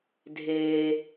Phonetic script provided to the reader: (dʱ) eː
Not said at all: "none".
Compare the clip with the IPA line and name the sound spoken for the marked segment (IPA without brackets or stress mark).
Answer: dʱ